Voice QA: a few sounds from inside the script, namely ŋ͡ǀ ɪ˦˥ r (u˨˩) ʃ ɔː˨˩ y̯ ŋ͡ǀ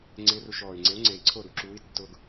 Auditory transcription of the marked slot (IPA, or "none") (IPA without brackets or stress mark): u˧